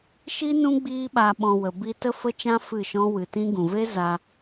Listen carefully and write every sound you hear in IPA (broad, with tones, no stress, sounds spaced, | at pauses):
ʃ i˦ n ũ˦ ɡ͡b iː˦ ɓ a˧ ɓ ɔ̃˧ w ə˨ b i˧ t ə˦ f ə˦ t͡ʃ ã˦ f ɨ˦˨ ʃ ɔ̃˦ w ɨ˨ t ĩ˦ ɡ ũ˨ v e˦ z a˧